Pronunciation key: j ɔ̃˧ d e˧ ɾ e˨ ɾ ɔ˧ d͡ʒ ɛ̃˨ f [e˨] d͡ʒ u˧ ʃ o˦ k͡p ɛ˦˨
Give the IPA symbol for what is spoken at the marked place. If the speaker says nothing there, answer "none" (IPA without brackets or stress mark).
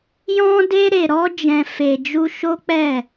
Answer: e˨